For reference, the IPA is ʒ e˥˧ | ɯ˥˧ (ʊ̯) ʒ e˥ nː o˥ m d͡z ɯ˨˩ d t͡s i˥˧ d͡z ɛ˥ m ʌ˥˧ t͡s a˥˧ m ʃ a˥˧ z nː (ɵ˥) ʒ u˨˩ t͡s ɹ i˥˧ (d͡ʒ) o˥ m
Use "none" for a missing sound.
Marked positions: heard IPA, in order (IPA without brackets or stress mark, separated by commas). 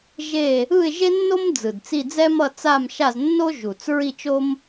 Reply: ɪ̯, o˥, t͡ʃ